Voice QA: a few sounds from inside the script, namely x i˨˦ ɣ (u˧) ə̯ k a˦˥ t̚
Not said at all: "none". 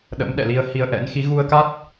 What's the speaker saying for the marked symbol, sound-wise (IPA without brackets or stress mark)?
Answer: u˧